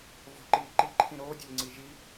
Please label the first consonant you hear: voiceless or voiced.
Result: voiced